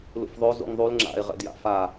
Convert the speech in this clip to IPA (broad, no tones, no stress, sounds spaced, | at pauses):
l ṵ f ðˤ o z ṵ ŋ ðˤ u l ŋ͡ǁ a̰ e̯ ʁ ɛ̰ d j a̰ f a